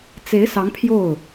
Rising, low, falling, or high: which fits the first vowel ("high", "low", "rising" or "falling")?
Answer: rising